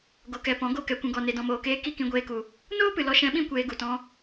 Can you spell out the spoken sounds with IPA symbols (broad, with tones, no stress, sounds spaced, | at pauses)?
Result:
ɡ o˨ k ɛ˨ p ɔ̃˨˦ ɡ o˦˨ k ɛ˨ kʷ ũ˨ ɡ ɔ˨ n e˨ d ɔ̃˨ m oː˨ k eː˧ k i˧ k ĩ˧ ɡʷ eː˧ k u˨ | n oː˦ p ɨ˨ l ɔ˧ ʃ ɛ̃˧ ɓ ĩ˦ kʷ eː˧ ɡ u˨ t ɔ̃˧